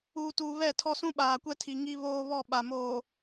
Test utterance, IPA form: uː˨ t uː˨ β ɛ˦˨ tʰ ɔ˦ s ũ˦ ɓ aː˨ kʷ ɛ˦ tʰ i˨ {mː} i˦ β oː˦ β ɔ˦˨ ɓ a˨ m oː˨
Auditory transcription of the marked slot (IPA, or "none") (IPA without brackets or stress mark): ŋ